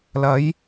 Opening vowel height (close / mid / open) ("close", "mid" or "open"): open